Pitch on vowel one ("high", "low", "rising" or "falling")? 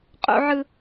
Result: high